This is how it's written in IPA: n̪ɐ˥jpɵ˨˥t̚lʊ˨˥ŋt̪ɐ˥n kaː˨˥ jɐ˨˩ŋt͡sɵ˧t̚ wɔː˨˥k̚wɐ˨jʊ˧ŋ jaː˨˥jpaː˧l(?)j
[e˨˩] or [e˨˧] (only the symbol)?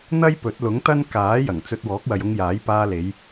e˨˧